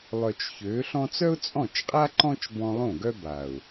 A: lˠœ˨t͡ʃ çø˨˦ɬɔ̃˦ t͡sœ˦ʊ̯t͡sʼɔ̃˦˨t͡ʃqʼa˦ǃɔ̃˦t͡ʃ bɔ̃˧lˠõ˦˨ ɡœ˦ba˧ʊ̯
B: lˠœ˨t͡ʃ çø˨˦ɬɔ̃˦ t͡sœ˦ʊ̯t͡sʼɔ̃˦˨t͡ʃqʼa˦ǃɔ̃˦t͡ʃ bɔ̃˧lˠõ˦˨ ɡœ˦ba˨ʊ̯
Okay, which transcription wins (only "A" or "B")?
B